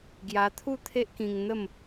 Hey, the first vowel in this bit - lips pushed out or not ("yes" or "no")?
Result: no